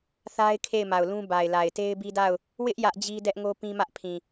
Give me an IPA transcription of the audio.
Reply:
θ a˦ ɪ̯ kʰ e˦˨ ɪ̯ m a˨ ʊ̯ l ũ˦ b a˨ ɪ̯ l a˨ ɪ̯ t e˦ ɪ̯ b i˦ d a˦˨ ʊ̯ | w ɪ˦ ʔ j ä˦ ʔ d͡ʑ i˦ d ɛ˦ ʔ ŋ o˦ p ĩ˦ m ä˦ ʔ pʰ ĩ˨

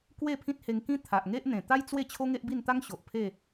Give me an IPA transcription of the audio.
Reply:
k w e˥˧ pʰ ĩ˦ t̚ h e˧ ŋ k ĩ˦ t̪ʰ a˨ ʔ ŋ e˦ ʔ n̪ ẽ˨˩ t̪ a˦ j t͡s w e˥˧ t͡ɕʰ o˦ ŋ e˦ ʔ b i˥˧ n t̪ a˦ ŋ ɕ o˨ ʔ pʰ e˥˧

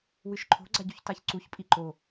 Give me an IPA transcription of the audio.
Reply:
w ɨ ʃ ǃʰ o̤ ɡ͡ǀ a ɟ u ç t a ç ǀ u ç pʼ i ǃ o

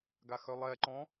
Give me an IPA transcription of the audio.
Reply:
ɡ a x œ lˠ ɛ ǃ ɔ̃

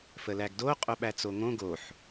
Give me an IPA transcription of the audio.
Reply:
f ə l æ ɡ d o qʼ o ɓ æ t͡s o ŋ õ ɡ o ħ

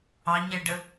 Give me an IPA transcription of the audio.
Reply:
ɑ ɲ ɛ ɖ ə

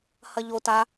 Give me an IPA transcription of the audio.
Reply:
h ɐ ʎ o t a

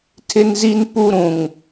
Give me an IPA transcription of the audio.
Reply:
tʰ ɪ˦ n z i˦ n p u˦ ɾ ũ˨ ŋ

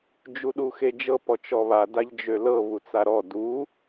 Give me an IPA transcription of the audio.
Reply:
d͡ʒ u ɗ u x e d͡ʒ ɤ p ɔ t͡ʃ ɔ β a d a ʎ d͡ʒ ø l ɤ β u t͡s a ɾ ɔ d u

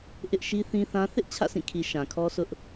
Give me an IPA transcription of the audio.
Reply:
ʔ ɪ˦ ʔ ʃ i˦ θ ĩ˦ θ ã˦ θ ɪ˦ ʔ t͡ɕʰ ä̰˦˨ sʰ ĩ˦˨ kʰ i˨ ʃ ã˨ kʰ ɔ˦ s ʊ˦ ʔ

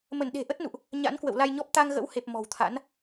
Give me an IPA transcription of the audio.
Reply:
m ə˧˩ n ɗ e̤˨˩ ʔ ə˦˥ t̚ n ṵ˧˨ ʔ | ɲ a̰˧˥ n k w ə̰˧˨ w l a˧ j ɲ ɔ˦˥ p̚ t̪ a˧ ŋ ɣ ə̰˧˥ w h e˨˩ p̚ m ɔ̤˨˩ w t̪ʰ a̰˧˥ n

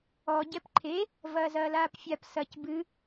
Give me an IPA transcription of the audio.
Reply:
ɔ ɟ ɛ p ǃʰ e | v ɐː z ɐː l aː p fʲ a p s ɐ c b ɨ

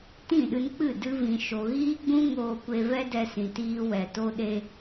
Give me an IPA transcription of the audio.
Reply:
t ĩ˦˨ ɗ ɨ˧ n k͡p ɨ˦˨ d ɨ˧ v ĩ˨ ʃ o˨ ɣ iː˦ ɡ͡b ũ˦ ŋ oː˧ kʷ e˧ v ɛ˦ d ɛ˧ s ĩ˨ t iː˧ w ɛ˨ t o˧ ɗ e˧

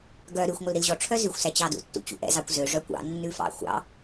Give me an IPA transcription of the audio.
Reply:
ɡ œ ɾ ʉ xʷ ŋʷ œ l ɾ i l ʑ ɔ ʈ͡ʂʰ œ z ʉ xʷ s æ t͡ɕ ɑ d ṵ tː ṵ t͡ɕ ṵ ʔ ɛ̰ z ɑ kʷ z ø ʐ œ kʷ ɑ̰ nː ʉ f ɑ̰ xʷ ɑ̰

